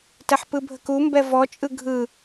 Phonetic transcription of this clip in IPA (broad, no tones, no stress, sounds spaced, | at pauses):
t ɛ ħ p ɯ bʱ ə k u m b ɛ v ɔ t͡ʃʼ ɯ ɡʱ ɯ